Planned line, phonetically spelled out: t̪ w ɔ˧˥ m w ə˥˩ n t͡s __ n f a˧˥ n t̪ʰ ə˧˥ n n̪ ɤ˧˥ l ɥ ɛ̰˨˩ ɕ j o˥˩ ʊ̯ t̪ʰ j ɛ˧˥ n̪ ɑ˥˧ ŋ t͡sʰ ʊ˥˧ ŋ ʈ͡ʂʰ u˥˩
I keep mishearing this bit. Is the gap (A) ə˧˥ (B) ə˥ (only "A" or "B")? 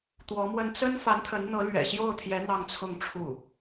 B